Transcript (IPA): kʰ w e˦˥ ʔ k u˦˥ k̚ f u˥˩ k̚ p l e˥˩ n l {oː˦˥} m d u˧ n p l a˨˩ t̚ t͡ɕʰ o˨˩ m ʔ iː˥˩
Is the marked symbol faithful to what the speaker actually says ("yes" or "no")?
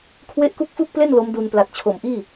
no